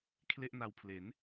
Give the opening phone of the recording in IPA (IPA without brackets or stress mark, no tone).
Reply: kʰ